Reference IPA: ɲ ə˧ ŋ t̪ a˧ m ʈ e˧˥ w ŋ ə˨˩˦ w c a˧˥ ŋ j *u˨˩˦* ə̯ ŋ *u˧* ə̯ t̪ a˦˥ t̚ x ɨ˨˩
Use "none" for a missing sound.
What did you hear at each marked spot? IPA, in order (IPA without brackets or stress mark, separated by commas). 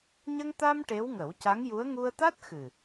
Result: u˧˥, u˧